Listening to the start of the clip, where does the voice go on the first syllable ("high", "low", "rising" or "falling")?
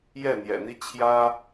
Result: falling